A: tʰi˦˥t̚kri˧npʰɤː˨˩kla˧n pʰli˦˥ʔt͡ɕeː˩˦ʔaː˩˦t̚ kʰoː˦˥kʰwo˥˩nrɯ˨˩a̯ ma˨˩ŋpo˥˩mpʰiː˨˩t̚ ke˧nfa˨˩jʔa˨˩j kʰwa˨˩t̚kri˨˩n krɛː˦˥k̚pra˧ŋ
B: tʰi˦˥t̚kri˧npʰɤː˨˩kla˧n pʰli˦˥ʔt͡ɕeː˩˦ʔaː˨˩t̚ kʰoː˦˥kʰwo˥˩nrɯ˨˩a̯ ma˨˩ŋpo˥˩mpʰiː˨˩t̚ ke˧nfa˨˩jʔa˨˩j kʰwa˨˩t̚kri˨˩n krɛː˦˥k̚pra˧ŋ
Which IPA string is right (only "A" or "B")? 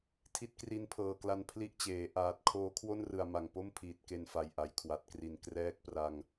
B